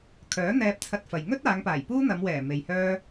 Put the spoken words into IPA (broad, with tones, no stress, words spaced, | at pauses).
kʰœː˨˥n̪ɛː˧p̚ t͡sʰɐ˧t̚fɐ˨j ŋɵ˥t̚aː˨˧ŋpaː˨˩j puː˥n̪ɐ˨˧mwɛː˨˩ me˨jhœː˥